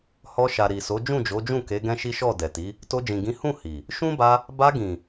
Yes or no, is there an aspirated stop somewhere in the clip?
no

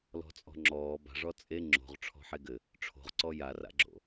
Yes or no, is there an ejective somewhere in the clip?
yes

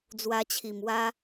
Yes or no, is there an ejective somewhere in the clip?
no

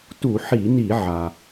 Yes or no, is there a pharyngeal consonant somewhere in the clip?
yes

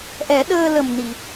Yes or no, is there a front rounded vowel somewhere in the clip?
no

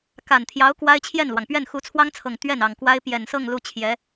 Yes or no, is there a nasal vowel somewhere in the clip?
no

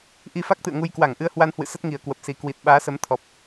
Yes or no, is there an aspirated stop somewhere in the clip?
yes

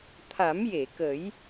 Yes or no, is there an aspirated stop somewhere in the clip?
yes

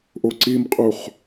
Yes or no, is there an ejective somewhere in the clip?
yes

